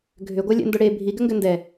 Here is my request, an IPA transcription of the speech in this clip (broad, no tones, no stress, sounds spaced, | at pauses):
ɡʱ ʏ ɡʷ ɛ lʲ ɛ̰ n d ʊ ɽ e bʱ i ɡ ʏ ŋ ɡ ʏ n d ɛ